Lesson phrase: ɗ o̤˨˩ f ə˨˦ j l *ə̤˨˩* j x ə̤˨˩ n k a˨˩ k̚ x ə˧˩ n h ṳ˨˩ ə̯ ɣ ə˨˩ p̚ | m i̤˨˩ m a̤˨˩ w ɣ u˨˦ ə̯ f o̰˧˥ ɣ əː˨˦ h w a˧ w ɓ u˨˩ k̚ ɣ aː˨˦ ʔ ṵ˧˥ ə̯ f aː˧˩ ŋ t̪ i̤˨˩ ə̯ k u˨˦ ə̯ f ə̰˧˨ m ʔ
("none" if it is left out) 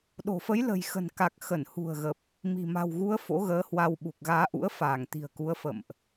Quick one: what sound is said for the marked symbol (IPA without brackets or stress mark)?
ə̤˨˩